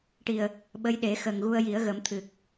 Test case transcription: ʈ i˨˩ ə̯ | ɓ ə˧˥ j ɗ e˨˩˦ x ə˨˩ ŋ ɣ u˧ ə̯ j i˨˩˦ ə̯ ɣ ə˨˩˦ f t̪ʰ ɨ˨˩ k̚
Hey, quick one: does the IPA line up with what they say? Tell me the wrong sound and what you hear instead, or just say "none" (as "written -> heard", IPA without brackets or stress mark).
f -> m